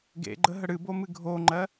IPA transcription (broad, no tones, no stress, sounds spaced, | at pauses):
ɡ ḛ ɡ͡ǃ ə ɦ ə ɽ ɨ b o m ɨ ɡʱ o ŋ͡ǃ ɜ